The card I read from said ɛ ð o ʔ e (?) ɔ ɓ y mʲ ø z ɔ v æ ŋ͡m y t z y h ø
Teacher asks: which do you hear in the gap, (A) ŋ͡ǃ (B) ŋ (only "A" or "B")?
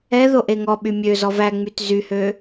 B